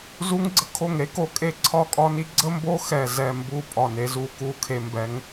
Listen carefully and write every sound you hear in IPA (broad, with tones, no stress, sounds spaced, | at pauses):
z u˧ ŋ ɡ͡ǀ ə˧ kʰ o˧˩ ŋ ɾ e˥ k o˧ kʼ e˧˩ ǀʰ ɒ˧˩ kʼ ɒ˧ n i˧ ɡ͡ǀ ə˥ m b o˥ x ɛ˧˩ z ɛ˧˩ m b u˧˩ pʼ ɒ˧˩ n e˧ z u˧ k u˧ kʰ e˧ m b ɛ˧ ŋ